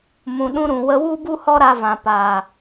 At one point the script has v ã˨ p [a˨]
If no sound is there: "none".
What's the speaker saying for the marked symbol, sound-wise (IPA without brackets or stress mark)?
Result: aː˨